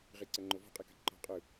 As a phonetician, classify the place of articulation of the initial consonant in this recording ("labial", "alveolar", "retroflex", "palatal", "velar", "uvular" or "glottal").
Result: uvular